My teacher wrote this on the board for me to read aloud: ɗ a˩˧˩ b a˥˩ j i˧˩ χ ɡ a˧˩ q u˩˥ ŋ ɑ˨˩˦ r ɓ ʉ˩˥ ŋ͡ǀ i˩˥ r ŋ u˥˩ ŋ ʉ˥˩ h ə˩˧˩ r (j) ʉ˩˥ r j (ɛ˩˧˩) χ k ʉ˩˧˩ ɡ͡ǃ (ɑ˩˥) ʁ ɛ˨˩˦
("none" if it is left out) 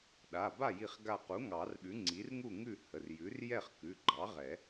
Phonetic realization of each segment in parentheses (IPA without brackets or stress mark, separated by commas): j, ɛ˥˩, ɑ˩˥